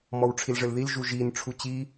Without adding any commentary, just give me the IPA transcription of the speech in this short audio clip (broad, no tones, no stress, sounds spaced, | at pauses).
m ɔ w ʈ͡ʂʰ i l ʐ ɘ l ð i l ʒ u ʒ i n ʈ͡ʂʰ u t͡ɕ i